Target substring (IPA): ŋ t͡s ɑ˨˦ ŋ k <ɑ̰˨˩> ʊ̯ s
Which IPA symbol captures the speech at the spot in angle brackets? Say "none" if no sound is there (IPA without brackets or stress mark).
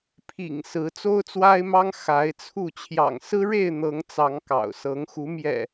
ɑ̰˨˩